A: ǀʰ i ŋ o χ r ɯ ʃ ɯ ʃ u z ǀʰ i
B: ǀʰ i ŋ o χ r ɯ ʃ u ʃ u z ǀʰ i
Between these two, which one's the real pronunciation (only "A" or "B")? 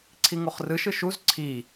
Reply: A